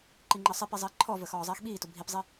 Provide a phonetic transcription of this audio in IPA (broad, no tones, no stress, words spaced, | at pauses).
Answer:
ǃiŋ͡ǃəːsˤipi zˤiːǃʰɔvəːx ɔːzˤiːxɓiːtʊ bʱipzˤi